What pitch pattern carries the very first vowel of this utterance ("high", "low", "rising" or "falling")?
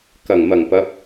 low